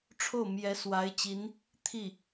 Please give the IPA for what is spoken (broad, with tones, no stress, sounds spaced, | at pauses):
ʈ͡ʂʰ o˥˩ ʊ̯ m j ɛ˧˥ s w a˧˥ ɪ̯ t͡ɕ i˧˥ n | t̪ʰ i˥˩